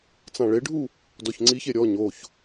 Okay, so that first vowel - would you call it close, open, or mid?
open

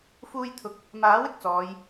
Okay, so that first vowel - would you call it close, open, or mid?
close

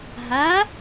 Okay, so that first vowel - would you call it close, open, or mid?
open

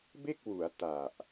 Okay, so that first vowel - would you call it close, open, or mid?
mid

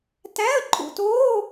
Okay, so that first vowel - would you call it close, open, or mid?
open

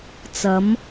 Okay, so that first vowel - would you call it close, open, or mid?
open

